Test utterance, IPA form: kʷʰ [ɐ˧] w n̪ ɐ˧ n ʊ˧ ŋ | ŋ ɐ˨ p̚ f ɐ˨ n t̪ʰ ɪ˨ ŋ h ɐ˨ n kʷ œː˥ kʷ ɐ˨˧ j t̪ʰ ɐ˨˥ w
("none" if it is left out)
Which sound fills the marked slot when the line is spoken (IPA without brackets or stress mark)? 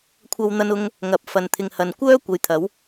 ɐ˧